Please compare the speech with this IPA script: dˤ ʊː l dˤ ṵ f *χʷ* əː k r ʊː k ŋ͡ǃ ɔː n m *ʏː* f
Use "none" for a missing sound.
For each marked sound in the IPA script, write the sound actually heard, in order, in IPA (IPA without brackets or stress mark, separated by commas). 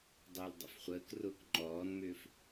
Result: χʷ, ʏː